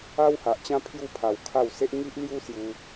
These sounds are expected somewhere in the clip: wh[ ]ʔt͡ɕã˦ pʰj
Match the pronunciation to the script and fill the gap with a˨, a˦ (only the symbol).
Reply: a˨